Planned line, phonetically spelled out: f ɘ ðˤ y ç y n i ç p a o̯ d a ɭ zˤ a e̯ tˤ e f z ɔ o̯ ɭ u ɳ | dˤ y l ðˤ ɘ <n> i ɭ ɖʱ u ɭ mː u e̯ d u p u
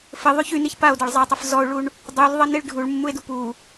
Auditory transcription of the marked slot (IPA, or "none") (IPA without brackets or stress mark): n